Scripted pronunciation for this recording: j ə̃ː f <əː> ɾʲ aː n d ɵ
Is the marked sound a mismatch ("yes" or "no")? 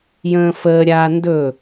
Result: no